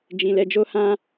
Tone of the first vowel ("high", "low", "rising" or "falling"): low